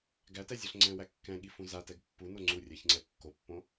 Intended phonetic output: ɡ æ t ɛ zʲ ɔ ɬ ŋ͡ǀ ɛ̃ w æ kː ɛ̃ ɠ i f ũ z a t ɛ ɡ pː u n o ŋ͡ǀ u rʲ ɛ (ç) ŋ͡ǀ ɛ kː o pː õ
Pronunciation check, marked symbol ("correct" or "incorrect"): correct